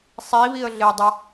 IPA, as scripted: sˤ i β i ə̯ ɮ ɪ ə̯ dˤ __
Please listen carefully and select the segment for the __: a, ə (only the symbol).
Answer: ə